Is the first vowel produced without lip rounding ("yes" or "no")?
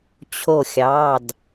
no